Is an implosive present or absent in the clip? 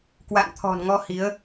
absent